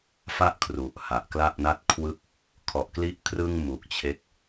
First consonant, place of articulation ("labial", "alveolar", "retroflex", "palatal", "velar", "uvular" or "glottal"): labial